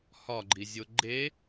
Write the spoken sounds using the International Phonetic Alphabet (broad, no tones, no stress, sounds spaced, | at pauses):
h ɒ ɡ͡ǃ i zʲ o ɡ͡ǃ e